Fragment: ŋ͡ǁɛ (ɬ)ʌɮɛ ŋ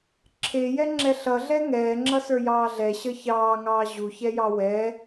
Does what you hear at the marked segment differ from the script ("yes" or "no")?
no